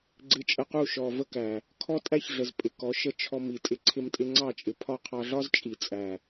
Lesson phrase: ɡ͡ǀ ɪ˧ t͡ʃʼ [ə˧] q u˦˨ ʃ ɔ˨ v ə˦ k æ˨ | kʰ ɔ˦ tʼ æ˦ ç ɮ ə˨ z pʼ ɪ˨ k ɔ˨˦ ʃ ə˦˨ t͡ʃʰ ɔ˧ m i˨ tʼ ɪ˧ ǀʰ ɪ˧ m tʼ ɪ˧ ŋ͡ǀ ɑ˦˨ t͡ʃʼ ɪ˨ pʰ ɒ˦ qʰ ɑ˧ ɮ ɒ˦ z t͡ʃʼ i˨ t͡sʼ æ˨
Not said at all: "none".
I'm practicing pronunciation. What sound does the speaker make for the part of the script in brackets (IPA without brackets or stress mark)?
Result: ə˧